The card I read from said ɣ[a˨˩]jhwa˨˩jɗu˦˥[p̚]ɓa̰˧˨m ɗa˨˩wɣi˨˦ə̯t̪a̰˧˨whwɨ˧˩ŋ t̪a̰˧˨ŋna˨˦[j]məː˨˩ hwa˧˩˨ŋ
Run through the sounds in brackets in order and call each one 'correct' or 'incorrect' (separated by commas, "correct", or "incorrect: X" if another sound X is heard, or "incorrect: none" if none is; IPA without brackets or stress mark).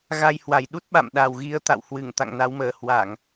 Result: incorrect: a˧, incorrect: t̚, incorrect: w